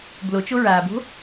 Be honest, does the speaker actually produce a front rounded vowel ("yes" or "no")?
no